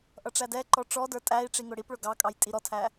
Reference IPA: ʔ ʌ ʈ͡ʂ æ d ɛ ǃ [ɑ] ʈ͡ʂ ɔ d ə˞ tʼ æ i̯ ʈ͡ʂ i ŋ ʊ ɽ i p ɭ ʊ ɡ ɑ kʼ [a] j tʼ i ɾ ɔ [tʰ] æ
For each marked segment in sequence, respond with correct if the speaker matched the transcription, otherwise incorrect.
incorrect, incorrect, correct

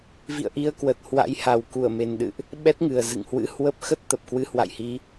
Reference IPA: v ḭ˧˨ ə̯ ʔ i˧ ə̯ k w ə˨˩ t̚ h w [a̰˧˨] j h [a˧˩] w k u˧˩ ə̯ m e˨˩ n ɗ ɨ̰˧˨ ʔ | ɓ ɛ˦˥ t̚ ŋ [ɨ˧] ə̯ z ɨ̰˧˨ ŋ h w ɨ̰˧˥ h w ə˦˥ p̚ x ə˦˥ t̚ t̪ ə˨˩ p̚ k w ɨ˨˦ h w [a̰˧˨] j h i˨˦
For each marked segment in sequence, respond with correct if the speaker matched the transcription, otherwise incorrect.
incorrect, incorrect, incorrect, correct

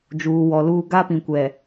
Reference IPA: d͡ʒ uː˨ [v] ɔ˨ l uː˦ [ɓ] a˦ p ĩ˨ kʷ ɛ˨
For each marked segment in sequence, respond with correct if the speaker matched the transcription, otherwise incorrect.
incorrect, incorrect

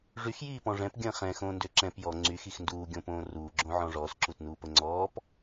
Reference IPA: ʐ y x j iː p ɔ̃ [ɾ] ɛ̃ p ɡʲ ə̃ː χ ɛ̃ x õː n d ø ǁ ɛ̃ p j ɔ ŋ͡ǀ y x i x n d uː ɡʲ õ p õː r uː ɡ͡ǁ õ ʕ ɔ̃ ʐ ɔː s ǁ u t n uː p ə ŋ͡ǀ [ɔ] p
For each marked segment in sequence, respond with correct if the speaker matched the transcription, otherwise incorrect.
incorrect, incorrect

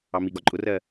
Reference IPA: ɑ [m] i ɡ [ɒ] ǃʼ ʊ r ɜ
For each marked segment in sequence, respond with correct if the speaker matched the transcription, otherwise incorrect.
correct, correct

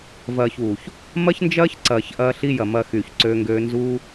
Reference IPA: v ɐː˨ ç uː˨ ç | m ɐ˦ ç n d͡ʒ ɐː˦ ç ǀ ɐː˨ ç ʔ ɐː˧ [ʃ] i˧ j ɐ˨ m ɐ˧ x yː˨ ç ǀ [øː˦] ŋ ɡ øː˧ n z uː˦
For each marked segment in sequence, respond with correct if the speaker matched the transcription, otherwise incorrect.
incorrect, incorrect

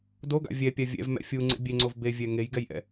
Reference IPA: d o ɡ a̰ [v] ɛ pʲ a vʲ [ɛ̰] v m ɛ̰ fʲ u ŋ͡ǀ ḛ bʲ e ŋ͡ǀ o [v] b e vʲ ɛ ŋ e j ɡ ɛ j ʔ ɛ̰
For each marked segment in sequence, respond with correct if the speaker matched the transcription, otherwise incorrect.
incorrect, correct, correct

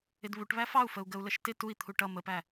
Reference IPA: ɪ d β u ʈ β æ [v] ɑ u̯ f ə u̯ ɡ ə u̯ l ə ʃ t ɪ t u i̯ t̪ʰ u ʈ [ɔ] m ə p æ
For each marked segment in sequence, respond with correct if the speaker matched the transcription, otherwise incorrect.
incorrect, incorrect

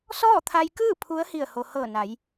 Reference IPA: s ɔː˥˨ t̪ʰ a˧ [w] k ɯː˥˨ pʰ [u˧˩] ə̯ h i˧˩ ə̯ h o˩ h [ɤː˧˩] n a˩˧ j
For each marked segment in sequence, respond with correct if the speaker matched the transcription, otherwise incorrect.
incorrect, incorrect, correct

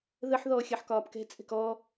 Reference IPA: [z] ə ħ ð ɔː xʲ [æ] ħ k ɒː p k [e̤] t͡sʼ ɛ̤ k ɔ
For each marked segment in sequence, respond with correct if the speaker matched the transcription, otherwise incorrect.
incorrect, incorrect, incorrect

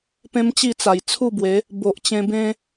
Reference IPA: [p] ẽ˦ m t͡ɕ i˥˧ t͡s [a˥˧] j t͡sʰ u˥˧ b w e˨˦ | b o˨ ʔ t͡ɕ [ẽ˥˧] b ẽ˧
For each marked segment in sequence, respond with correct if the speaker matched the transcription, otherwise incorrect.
correct, incorrect, incorrect

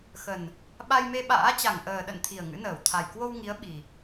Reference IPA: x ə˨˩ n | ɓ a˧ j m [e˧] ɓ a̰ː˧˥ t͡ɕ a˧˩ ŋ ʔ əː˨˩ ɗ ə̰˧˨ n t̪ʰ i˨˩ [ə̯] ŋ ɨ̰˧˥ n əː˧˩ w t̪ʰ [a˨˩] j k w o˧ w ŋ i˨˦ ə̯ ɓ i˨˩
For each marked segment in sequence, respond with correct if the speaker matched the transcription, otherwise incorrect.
correct, correct, correct

